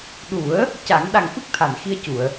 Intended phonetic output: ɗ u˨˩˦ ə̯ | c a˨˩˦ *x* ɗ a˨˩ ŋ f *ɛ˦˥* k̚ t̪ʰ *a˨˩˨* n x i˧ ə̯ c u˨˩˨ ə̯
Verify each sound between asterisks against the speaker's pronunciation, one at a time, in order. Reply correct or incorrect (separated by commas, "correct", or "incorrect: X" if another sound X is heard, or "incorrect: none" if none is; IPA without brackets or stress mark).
incorrect: ŋ, incorrect: ɨ˦˥, correct